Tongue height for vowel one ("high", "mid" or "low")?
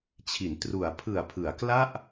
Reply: high